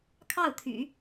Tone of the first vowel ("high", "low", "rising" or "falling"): falling